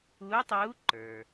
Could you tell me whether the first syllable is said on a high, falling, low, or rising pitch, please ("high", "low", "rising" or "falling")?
rising